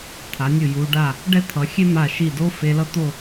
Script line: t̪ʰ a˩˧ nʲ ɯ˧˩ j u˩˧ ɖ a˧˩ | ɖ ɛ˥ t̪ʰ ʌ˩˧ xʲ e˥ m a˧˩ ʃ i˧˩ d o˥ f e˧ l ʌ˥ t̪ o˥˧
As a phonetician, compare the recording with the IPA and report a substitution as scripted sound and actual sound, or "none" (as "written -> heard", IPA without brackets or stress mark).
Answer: none